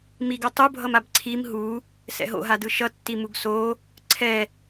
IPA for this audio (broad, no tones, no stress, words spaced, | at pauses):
miɡo tˤubʱʌmab ǀʰim ɦu | sɛ̰ɦo̰ɦadɯ ʃʌtːi muɡso | ǀʰɛ